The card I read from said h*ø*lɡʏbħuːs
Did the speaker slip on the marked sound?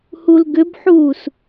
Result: yes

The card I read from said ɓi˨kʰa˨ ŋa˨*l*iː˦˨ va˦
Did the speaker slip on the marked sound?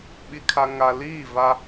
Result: no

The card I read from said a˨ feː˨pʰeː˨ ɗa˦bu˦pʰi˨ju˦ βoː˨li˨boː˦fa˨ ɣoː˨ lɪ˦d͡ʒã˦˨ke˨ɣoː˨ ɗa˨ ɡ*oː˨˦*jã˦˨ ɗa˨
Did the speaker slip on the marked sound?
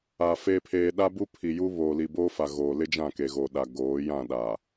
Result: no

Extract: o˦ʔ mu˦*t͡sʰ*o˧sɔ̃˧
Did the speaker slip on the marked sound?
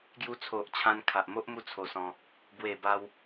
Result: no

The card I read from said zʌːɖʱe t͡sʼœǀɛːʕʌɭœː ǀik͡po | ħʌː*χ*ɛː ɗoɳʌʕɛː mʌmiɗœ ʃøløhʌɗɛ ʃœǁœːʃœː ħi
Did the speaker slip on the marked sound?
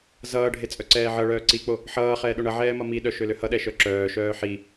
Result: no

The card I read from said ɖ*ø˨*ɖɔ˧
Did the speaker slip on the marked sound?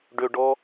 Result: no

